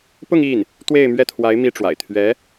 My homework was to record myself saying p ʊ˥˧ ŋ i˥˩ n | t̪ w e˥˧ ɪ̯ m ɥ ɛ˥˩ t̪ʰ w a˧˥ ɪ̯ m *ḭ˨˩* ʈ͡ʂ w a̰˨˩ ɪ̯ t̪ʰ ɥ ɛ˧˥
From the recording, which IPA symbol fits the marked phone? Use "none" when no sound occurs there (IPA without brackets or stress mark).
i˥